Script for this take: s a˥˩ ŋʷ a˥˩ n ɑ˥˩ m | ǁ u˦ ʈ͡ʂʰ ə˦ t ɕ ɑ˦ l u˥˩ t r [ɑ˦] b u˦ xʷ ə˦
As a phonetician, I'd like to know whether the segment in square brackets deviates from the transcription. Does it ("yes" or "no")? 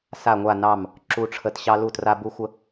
yes